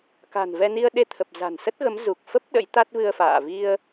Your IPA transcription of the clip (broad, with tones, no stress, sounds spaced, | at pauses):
k a̤˨˩ n v ɛ˧ n i˧ ə̯ ɗ e˧ t̪ʰ ə˨˩ p̚ z a̤˨˩ n s ə˦˥ t̚ ɣ ə˨˦ m z u˨˩ k̚ f ə˦˥ p̚ ɗ ə̰˧˥ j t̪ a˦˥ t̚ v ɨ˧ ə̯ f a̰ː˧˨ v i˧ ə̯